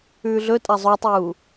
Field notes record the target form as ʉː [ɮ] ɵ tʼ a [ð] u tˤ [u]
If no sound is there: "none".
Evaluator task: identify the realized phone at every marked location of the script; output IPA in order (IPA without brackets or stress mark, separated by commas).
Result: ɮ, zˤ, uː